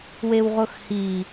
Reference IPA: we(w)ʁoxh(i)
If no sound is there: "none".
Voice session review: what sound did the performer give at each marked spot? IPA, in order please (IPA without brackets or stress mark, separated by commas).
w, i